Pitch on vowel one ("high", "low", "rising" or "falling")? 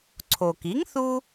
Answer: low